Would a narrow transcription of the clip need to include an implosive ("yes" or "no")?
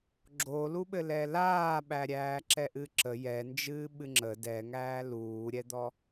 yes